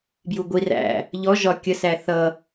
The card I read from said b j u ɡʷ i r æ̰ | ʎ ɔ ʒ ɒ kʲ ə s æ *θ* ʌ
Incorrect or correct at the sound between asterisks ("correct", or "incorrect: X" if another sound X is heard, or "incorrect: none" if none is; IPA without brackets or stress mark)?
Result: correct